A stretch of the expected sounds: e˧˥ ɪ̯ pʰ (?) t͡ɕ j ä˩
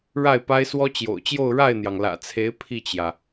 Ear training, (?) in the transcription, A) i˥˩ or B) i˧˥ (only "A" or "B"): A